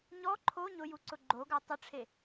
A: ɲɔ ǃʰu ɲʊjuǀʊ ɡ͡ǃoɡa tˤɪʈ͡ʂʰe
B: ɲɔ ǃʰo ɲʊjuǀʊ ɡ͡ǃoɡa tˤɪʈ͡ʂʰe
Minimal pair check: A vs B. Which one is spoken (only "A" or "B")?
B